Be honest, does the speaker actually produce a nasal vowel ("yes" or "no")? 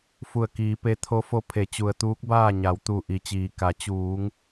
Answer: no